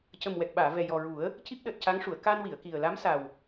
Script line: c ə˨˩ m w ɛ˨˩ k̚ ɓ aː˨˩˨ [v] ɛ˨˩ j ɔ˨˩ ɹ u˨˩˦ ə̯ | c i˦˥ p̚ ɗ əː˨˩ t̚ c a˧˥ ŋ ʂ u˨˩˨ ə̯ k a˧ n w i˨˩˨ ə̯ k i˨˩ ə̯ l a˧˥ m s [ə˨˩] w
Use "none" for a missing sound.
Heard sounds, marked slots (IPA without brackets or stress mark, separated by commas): v, a˨˩